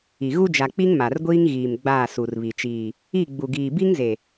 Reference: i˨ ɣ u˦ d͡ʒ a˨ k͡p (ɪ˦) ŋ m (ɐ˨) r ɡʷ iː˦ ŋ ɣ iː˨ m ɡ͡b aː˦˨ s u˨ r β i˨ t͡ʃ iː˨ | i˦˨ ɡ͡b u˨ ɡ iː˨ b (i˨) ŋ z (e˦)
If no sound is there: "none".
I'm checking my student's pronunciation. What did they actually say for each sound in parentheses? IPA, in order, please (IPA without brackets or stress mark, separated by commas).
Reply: i˦, a˨, i˦, e˨